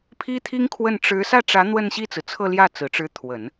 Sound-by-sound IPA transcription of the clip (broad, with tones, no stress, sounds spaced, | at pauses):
pʰ i˥ t̪ʰ i˥ ŋ kʰ w ə˥˩ n ʈ͡ʂ ɻ̩˧˥ s ä˥˩ ʈ͡ʂ ä˧˥ n̪ w ə˥˧ n ɕ i˥˩ t͡s ɹ̩˩ t͡sʰ ɤ˥˧ l j ä˥˩ t͡s ɹ̩˨˩ ʈ͡ʂ ɻ̩˧˥ t̪ʰ w ə˨˩˦ n